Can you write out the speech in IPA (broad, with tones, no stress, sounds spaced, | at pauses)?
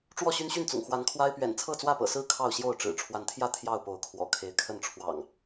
ʈ͡ʂ w ɔ˥˨ ɕ y˦ n ɕ y˥˨ n t͡s ʊ̰˨˩ ŋ x w a˨˦ n kʰ w a˦ ɪ̯ p ɥ ɛ̰˨˩ n t͡sʰ ɤ˥˨ t͡s w ä˥˨ p ɤ̰˨˩ s ɹ̩˥˨ kʰ ɑ˥˨ ʊ̯ ɕ j o˥˨ ʊ̯ ʈ͡ʂ ɻ̩˨˩ ʈ͡ʂʰ w a˨˦ n t̪ʰ j ä˥˨ t̪ʰ j ɑ˥˨ ʊ̯ p o˨˦ ʊ̯ kʰ w ɔ̰˨˩ kʰ e˨˦ ɪ̯ kʰ ə˥˨ n ʈ͡ʂʰ w ɑ̰˨˩ ŋ